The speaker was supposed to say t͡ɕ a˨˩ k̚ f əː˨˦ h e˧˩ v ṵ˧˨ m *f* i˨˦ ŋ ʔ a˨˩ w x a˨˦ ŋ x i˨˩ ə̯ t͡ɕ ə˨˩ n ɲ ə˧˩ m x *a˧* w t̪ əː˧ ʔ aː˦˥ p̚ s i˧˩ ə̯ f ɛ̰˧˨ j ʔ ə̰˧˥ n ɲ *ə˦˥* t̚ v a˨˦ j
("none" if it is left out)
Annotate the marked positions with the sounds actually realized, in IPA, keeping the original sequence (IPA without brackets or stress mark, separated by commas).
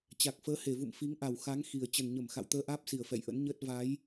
f, a̰˧˨, əː˦˥